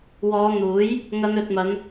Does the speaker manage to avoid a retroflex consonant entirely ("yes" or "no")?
yes